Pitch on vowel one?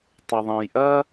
low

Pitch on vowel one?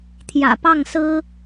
low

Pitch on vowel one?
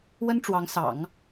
high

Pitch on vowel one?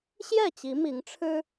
falling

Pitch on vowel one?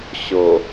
low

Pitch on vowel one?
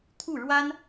falling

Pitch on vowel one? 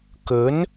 rising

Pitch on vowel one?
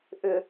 low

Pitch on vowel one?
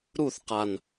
falling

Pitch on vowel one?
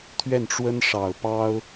falling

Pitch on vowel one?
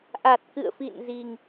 low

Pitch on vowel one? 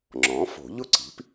rising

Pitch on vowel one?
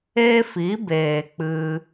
high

